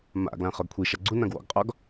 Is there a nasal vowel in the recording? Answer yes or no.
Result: yes